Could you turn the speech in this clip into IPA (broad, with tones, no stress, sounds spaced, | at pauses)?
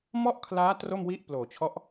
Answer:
m ɔ˥˩ ʔ kʰ l aː˦˥ t r o˥˩ m w i˥˩ ʔ p l oː˨˩ t͡ɕʰ ɔ˦˥ ʔ